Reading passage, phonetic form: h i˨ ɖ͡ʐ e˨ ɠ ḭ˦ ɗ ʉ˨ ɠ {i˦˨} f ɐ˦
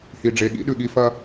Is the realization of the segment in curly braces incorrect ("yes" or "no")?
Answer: no